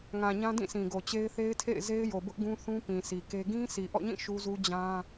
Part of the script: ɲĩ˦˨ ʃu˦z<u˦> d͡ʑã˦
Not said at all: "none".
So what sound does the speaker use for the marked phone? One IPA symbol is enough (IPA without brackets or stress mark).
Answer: u˦